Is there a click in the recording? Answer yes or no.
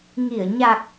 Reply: no